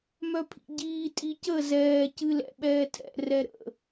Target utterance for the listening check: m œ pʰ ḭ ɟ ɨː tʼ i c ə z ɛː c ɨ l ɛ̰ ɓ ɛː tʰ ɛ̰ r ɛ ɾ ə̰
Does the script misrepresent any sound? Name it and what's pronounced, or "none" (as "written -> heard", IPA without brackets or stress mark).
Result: ɨː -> iː